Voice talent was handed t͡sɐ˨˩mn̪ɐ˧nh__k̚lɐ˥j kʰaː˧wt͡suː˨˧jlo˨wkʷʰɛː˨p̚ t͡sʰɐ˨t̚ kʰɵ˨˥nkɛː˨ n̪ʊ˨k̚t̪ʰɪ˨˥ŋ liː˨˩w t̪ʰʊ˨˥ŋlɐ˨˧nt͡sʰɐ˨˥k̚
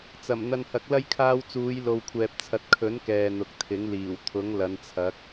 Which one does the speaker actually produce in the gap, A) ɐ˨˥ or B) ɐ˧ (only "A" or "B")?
A